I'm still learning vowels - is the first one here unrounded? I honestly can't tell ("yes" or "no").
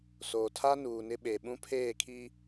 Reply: no